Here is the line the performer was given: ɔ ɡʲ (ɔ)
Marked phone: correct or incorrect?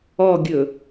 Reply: incorrect